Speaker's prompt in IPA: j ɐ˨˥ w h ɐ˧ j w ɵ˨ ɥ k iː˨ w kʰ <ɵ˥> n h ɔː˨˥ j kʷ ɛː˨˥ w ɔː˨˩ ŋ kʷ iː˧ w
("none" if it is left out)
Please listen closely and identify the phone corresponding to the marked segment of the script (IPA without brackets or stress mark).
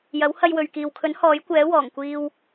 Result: ɵ˨˥